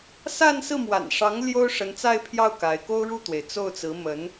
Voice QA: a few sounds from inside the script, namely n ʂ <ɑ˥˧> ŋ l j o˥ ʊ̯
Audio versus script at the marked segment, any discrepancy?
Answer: yes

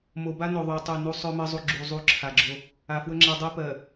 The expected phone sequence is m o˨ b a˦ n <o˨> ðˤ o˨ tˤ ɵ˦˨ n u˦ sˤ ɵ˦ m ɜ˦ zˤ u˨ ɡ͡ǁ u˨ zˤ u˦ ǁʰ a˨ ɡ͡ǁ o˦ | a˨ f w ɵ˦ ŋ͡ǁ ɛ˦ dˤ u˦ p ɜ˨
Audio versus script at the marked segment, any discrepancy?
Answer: no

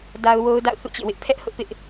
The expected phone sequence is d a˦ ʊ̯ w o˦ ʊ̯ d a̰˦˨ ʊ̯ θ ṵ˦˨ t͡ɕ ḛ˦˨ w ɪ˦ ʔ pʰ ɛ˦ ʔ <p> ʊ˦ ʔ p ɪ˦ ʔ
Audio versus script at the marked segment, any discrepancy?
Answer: yes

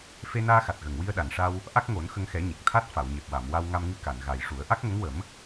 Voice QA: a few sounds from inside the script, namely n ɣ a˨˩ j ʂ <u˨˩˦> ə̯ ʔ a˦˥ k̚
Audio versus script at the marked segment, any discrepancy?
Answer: no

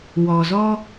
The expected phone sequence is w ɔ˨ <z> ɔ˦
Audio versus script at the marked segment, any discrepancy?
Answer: no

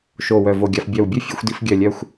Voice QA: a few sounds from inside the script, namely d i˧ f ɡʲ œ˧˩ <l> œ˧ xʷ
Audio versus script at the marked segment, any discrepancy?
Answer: yes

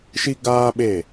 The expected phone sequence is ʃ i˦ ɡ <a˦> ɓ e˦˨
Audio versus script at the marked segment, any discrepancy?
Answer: yes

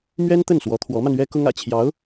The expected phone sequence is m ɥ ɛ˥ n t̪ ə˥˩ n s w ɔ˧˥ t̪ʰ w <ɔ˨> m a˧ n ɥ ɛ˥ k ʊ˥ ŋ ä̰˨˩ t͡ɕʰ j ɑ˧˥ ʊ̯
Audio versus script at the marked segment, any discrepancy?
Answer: yes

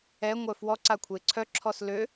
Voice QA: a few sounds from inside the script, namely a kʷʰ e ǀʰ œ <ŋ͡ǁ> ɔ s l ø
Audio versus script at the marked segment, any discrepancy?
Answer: yes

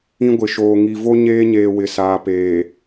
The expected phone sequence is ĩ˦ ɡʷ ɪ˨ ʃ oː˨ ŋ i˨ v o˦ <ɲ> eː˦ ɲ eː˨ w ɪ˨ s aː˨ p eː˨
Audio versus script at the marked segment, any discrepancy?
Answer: no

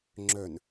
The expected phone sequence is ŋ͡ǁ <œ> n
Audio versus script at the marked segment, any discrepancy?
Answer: no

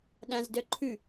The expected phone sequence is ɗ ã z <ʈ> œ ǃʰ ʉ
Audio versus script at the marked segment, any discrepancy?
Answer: yes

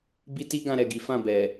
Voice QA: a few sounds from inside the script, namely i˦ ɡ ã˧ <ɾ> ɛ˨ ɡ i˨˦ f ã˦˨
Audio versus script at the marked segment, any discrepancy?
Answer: no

